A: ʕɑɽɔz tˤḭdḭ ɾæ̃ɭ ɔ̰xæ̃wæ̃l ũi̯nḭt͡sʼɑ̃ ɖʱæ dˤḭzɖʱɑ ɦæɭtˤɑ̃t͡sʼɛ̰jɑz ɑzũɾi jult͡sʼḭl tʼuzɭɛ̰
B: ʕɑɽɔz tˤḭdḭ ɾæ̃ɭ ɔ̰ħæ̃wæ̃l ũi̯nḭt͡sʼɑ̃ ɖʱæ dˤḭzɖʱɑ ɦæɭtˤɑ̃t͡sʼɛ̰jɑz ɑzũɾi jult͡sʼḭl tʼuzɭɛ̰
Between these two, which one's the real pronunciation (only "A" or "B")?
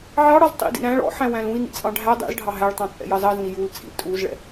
B